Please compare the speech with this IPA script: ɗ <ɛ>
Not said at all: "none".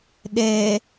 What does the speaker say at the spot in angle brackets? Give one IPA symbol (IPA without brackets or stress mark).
ɛ